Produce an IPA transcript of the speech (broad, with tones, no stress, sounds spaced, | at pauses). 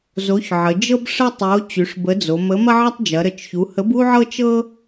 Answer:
z o˨˥ ç ʕ ə˩˧ d͡ʒ ɤ˥ b ʂ ə˥ tˤ o˨˥ t͡ɕ y˩˧ ʂ b ə˨˥ d͡z o˩˧ m ə˨˥ m ɐ˥ ʕ ɐ˥ tˤ d͡ʒ ɐ˩˧ ɾ ə˩˧ t͡ʃ ç u˩˧ h ə˨˥ b u˥ ʕ ɤ˥ t͡ʃ ɤ˥